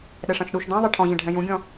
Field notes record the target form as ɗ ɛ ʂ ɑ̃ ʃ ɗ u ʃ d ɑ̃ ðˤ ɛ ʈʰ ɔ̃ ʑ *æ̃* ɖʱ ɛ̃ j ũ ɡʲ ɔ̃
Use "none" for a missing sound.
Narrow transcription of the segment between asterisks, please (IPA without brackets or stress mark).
ɛ̃